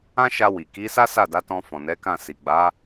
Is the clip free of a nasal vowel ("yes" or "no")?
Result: no